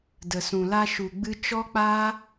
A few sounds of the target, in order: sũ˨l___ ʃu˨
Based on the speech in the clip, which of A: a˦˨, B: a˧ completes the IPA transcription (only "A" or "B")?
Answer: B